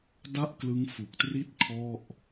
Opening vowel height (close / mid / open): open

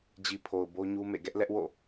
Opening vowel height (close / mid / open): close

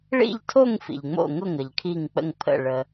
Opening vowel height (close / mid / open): close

